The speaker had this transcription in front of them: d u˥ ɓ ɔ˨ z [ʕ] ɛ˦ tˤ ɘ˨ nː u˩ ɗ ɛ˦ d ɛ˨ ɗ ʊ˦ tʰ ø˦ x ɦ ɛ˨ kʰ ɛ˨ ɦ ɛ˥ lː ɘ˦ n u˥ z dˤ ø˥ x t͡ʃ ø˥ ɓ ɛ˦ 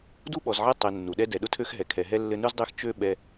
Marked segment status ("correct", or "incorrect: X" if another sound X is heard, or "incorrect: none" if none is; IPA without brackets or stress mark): correct